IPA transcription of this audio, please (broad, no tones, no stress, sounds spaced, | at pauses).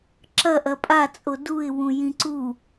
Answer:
ǁ ɐ ʔ ɐ pʼ a t͡sʼ o d u ɪ̯ w ũ j ĩ ǀ u